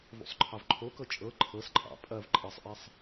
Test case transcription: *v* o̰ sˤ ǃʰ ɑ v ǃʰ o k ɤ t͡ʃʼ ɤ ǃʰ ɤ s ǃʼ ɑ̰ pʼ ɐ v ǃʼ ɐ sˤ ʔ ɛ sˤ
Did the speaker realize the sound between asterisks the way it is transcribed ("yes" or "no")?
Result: yes